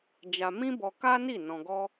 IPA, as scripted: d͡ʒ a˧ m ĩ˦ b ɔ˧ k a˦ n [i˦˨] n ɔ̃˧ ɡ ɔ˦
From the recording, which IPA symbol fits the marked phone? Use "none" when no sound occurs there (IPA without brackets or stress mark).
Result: i˦˨